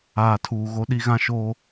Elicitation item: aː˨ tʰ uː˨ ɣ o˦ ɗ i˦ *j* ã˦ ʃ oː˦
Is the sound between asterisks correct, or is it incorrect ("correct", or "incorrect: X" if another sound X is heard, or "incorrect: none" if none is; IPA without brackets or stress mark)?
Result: incorrect: ɣ